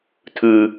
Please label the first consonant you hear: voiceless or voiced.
voiceless